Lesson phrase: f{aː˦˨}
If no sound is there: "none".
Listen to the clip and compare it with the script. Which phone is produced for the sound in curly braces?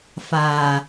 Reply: aː˨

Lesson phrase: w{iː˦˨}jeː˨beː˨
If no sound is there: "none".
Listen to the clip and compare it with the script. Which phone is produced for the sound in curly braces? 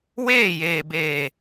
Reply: eː˦˨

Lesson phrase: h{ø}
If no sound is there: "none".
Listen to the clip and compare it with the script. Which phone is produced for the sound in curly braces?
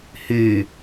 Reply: y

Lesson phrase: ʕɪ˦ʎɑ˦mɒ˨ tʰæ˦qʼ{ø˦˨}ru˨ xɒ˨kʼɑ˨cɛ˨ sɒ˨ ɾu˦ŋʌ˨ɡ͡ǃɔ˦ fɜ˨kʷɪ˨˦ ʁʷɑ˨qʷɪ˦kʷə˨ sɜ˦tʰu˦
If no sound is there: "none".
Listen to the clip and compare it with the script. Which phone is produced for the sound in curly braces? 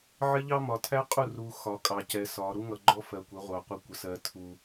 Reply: u˦˨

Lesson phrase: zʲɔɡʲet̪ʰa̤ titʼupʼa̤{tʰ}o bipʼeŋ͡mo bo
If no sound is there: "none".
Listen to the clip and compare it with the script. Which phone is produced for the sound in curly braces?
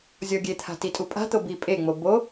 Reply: t̪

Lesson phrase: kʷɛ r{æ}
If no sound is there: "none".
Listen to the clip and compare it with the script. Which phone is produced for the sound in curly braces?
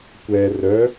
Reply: œ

